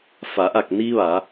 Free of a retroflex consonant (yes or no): yes